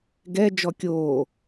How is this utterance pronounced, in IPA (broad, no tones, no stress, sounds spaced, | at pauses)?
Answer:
ɡ ɛ d͡ʒ ɔ kʲ oː